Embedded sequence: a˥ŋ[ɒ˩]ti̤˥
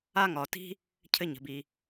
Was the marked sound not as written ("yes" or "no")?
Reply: no